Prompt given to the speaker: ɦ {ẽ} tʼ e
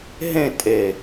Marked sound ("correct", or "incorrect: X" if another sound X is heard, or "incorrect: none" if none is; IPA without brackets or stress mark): correct